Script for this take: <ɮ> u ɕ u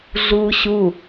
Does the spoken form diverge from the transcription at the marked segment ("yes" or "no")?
no